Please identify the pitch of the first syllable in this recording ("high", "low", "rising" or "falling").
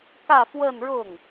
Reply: falling